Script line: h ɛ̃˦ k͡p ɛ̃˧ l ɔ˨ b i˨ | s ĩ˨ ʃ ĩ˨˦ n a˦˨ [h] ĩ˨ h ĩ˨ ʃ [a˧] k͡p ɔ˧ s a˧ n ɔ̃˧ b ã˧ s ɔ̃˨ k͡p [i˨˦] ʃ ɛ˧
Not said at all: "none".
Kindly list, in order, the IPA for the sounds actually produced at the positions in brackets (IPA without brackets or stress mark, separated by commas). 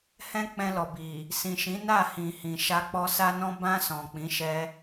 h, a˧, ĩ˨˦